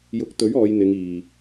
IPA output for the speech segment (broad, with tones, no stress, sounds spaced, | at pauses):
j ʊ˨˥ k̚ t̪ ɵ˨˥ ɥ ɔː˨˧ j n̪ ɪ˨˧ ŋ iː˨